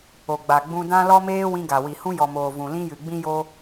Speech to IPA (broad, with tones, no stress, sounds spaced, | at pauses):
o˨ ɡ͡b a˨ ɡ͡b ũ˧ d ã˦ l ɔ˦ m eː˦ w ĩ˧ ɡ a˨ w i˨ h ũ˧ j ɔ˨ m oː˨ v ũ˨ l ĩ˧ j ɨ˨ ɡ͡b ĩ˦ j o˦